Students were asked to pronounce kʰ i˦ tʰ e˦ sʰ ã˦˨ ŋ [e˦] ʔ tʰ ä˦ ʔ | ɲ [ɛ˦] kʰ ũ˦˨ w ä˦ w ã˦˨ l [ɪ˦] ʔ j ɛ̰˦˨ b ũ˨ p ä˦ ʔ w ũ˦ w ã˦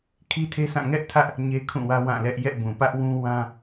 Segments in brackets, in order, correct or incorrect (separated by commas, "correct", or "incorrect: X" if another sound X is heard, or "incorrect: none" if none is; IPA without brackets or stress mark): incorrect: ɛ˦, incorrect: e˦, incorrect: ɛ˦